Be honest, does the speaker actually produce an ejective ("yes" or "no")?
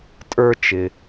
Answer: yes